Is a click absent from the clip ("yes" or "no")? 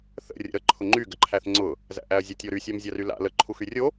no